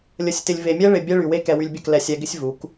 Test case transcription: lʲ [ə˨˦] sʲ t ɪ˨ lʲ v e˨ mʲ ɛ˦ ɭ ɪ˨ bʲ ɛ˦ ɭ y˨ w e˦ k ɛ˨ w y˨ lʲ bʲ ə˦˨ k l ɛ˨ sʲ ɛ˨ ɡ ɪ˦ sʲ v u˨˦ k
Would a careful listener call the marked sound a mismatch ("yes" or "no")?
no